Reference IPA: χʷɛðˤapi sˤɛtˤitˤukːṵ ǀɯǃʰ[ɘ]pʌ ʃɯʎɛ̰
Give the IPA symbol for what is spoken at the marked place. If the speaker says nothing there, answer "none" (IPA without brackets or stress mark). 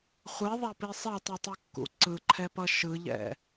ɛ